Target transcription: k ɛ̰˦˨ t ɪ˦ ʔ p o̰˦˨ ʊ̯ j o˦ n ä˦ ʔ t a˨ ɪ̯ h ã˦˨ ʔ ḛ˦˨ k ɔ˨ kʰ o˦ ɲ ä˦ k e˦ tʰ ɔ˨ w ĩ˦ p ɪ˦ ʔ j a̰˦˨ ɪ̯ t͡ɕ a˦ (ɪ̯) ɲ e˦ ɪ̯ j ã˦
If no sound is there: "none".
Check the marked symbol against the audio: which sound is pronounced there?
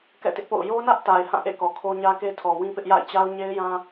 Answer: ʊ̯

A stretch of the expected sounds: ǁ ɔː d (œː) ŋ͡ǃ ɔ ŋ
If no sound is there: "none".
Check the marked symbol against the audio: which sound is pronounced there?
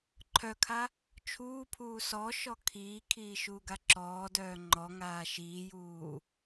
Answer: œː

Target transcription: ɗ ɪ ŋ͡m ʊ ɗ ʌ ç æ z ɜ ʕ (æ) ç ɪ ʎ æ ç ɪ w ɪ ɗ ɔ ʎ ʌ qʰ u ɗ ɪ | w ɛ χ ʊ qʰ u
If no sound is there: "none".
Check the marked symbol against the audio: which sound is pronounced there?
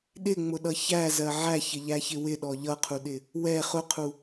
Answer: æ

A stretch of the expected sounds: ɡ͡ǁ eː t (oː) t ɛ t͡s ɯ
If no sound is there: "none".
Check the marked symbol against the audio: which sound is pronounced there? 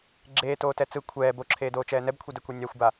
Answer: oː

